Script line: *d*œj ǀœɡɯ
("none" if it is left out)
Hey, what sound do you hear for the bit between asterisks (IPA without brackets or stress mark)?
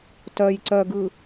t